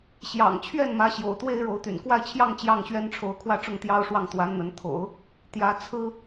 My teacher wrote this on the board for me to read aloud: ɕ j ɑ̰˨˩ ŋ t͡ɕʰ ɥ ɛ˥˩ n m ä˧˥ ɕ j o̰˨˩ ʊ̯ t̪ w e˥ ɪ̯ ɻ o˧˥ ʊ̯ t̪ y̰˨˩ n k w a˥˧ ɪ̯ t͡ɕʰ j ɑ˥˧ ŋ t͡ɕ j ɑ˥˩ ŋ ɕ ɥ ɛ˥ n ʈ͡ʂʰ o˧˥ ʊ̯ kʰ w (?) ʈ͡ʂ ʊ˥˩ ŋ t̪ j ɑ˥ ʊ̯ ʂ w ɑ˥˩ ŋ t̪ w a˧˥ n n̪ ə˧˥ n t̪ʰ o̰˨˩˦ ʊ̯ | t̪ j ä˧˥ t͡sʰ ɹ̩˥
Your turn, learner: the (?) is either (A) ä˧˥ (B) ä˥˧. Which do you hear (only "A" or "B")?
B